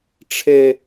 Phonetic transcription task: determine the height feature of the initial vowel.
mid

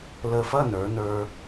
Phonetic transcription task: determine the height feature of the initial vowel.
mid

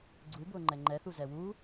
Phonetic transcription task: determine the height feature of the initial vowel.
high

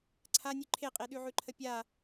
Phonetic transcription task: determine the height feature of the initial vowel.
low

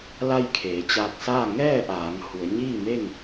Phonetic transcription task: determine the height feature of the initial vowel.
low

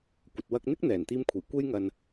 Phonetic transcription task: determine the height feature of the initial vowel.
low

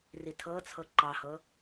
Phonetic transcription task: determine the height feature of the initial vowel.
high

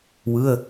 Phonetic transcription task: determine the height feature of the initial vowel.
high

